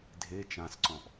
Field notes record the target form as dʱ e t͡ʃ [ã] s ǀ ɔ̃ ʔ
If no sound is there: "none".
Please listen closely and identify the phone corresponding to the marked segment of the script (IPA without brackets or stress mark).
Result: ã